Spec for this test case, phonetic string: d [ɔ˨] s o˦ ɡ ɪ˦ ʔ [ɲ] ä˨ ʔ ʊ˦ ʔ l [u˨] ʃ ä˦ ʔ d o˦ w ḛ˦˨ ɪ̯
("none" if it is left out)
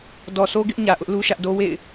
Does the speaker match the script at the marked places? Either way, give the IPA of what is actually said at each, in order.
ɔ˨, ɲ, u˦

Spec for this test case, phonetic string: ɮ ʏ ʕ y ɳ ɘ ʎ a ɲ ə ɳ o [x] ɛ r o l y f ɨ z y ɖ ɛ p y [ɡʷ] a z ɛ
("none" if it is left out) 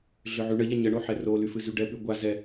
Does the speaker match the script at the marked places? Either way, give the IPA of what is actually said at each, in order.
ħ, ɡʷ

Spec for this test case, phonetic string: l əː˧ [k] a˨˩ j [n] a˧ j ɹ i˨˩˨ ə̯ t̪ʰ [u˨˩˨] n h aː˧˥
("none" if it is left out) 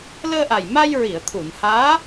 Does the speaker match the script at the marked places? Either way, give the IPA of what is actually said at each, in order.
ʔ, m, u˨˩˨

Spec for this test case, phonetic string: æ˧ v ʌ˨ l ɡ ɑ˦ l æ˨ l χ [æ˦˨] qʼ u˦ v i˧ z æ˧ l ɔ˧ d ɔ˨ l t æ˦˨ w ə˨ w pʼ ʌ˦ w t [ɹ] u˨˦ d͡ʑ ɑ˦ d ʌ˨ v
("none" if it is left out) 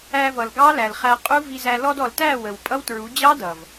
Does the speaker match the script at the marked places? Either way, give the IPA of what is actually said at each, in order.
æ˧, ɹ

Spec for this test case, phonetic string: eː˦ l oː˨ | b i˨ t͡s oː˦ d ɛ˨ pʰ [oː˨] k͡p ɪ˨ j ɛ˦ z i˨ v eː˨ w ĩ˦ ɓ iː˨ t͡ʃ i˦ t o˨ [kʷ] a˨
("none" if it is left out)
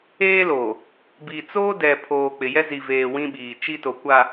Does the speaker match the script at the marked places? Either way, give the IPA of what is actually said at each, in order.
oː˨, kʷ

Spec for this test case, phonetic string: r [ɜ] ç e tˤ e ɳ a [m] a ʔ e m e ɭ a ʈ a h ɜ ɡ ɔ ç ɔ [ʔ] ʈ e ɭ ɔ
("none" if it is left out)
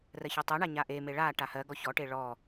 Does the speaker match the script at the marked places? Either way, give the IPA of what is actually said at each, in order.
ɜ, ɲ, none

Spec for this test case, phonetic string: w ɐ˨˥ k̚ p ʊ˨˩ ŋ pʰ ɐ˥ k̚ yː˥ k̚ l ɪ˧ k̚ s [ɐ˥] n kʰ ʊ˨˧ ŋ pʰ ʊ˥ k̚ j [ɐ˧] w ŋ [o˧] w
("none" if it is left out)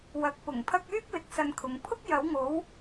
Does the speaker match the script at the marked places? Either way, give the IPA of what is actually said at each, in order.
ɐ˧, ɐ˨˥, o˨˥

